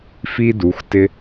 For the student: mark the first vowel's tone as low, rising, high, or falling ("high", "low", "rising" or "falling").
high